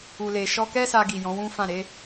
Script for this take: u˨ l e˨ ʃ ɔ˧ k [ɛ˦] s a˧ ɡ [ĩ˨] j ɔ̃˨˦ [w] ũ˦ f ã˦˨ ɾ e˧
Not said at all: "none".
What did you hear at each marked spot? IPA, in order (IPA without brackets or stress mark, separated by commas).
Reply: ɛ˦, i˨, w